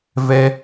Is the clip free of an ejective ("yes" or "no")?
yes